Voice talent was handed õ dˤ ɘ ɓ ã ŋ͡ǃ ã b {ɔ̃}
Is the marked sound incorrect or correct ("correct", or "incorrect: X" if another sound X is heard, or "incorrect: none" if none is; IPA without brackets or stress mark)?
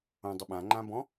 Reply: correct